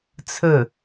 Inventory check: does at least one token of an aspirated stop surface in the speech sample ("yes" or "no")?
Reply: yes